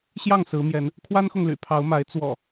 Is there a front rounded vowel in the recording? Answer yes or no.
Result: yes